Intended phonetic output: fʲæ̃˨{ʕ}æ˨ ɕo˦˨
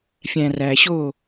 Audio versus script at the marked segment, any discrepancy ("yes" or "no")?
yes